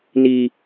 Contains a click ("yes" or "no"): no